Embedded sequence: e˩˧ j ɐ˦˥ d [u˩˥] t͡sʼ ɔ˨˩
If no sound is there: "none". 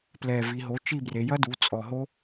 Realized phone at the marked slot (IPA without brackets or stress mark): u˩˥